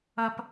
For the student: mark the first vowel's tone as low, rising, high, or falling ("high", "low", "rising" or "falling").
high